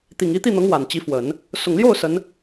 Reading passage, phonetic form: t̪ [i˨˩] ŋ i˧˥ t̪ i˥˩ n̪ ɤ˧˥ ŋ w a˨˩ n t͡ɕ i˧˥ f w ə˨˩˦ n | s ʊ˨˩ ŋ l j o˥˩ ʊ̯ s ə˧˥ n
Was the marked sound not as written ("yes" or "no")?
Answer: no